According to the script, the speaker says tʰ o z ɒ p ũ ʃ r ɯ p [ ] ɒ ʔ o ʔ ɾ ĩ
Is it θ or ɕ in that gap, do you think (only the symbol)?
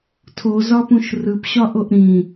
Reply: ɕ